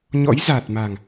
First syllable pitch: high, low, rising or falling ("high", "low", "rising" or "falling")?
rising